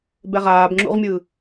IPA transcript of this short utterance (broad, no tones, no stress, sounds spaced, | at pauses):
b ɛ ʁ aː b ŋ͡ǁ ṵ ʁ mʲ ɯ